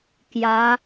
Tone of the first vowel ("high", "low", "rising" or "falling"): rising